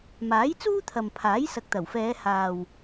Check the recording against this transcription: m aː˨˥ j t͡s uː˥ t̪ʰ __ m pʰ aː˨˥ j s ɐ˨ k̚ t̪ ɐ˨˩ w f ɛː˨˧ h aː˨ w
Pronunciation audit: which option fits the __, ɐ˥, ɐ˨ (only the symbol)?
ɐ˨